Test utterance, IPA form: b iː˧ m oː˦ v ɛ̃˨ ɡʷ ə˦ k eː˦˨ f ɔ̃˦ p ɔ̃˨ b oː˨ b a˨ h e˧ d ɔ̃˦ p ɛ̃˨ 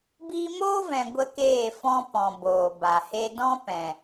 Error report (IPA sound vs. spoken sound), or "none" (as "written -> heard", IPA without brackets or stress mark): none